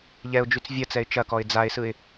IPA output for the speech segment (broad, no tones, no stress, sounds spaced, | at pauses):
ʎ ɛ ʊ̯ d͡ʒ y t͡s vʲ ɐ t͡s ɛ ɪ̯ t͡ʃ ɐ k ɔ ɪ̯ d͡z a ɪ̯ s ɯ ɪ̯